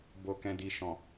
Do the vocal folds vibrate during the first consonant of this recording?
yes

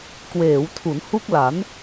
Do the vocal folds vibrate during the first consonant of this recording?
no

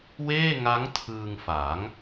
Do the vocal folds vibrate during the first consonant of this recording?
yes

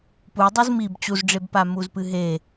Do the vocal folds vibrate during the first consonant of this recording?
no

